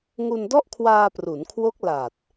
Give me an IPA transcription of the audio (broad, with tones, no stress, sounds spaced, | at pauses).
ŋ u˧ n d ɔ˥˩ ʔ kʰ w aː˧ p r u˩˦ n kʰ w o˦˥ k̚ l a˨˩ t̚